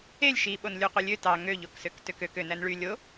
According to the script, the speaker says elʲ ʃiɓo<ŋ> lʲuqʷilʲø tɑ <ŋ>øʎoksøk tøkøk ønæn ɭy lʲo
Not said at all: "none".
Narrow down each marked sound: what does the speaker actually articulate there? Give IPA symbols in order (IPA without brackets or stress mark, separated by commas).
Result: n, ŋ